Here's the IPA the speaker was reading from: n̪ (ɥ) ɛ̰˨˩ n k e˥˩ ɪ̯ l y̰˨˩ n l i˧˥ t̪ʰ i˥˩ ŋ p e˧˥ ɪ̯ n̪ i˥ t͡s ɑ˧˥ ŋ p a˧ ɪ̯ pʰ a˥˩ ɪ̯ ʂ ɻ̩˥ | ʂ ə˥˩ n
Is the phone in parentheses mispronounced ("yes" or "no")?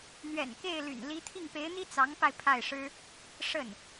no